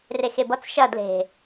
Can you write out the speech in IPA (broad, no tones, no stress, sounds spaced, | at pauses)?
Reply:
r e x e b ʌ t͡s ʃ ɐ d l e̤